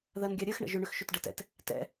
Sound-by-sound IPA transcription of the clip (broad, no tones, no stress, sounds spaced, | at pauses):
ð ɜ n ɡʲ a ɾʲ ɜ x ɳ ə̰ ʒ ʏ ɳ ʏ x ʃ ʏ t ɖ ə t ɛ̰ t | t ɛ̰